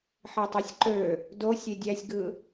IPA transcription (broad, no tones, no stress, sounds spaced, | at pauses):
ħ e tˤ ø sʲ ǃ ø | d o sʲ e dʲ æ sʲ ɡ ɯ